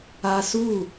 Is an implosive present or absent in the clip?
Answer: absent